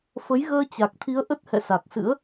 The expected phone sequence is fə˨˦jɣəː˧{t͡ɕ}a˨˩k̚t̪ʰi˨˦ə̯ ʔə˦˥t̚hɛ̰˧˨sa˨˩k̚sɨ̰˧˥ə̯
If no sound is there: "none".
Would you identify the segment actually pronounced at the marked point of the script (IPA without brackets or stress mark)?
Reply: t͡ɕ